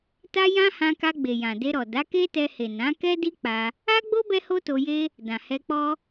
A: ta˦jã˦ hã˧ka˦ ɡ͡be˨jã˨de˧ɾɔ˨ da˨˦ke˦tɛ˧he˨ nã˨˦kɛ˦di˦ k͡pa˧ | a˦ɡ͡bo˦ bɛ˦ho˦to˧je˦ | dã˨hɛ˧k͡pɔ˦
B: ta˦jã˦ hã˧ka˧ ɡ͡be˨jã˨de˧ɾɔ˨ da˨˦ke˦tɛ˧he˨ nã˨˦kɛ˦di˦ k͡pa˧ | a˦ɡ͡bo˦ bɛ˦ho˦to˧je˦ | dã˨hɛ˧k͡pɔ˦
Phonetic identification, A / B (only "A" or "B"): B